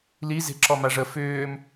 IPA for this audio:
l i z e̤ ǁ ɔ m a ʐ ə f ʏː m

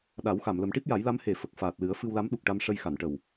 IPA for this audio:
ɗ a˨˩˦ w x a˨˩˨ m l ə˨˩˦ m ʈ i˦˥ p̚ j a˨˩˦ j l a˧˥ m h e˨˩ f ə˨˩ k̚ f aː˨˩ t̚ l ɨ˨˩˦ ə̯ f ɨ˧ w l a˧˥ m ɗ u˨˩ k̚ ʈ a˧ m ʂ ə˧ j x a˨˩˨ n ʈ ə˨˩ w

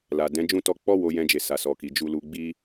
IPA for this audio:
l a˨ d ɛ̃˨˦ d͡ʒ ũ˦˨ t ɔ˧ k͡p ɔ˦ w o˧ j ɛ̃˧ d͡ʒ e˨ s a˨ s ɔ˨ k i˨ d͡ʒ u˧ l u˧ ɡ͡b i˦

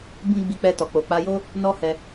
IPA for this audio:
b ĩ˦ ɡ͡b i˧ k͡p ɛ˧ t ɔ˨ k͡p o˨ k͡p a˧ j o˦ | n ɔ˦ h ɛ˧

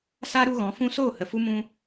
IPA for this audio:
s a˦ ɾ u˧ ɣ ɔ̃˨˦ f ũ˦ s oː˦˨ h ə˨ f u˦ m ũ˦

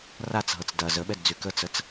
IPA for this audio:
r a t͡s ɦ ɤ t͡s d ɐ z ə ɓ ɛ d d͡z y k ə t͡s ə t͡s

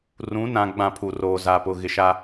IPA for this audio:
r ũ˨˦ n ã˨ ɡ͡b ã˦˨ pʰ u˨ r oː˨ z a˨ p ʊ˨ ɣ ɪ˨ ʃ a˦

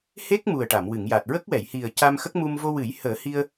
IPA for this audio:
h e˦˥ k̚ m u˨˩ ə̯ ʈ a˨˩˨ m w ɨ˨˩˨ ŋ j a˨˩ t̚ ɹ ə˦˥ k̚ w ɛ˨˩˨ j h i˨˩ ə̯ c a˧ m x ə˦˥ k̚ m u˧ m v o˧ w ɨ˨˩˦ j h əː˨˩˦ h i˧ ə̯

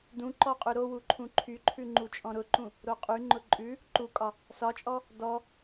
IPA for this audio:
d ũ ǃ ɔ qʼ ʉ ɾ o w u ǃʰ ũ ǃʰ y ǃʰ ʉ ŋ͡ǃ u t͡ʃʼ ɔ̃ ɾ ʊ ǃ ũ | ɾ o qʼ y ŋ͡ǃ ʊ ǃʼ ʉ | ǃ u kʼ ɒ | s ɒ t͡ʃʼ ɔ | d ɔ

